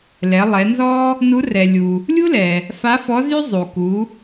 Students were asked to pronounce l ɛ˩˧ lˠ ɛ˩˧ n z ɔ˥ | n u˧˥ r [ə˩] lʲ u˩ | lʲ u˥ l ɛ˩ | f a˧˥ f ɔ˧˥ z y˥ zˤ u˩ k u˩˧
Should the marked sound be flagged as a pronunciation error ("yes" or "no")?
yes